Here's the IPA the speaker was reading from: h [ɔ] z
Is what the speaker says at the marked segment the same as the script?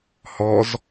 yes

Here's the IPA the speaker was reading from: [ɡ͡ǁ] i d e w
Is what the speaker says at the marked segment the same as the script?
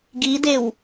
no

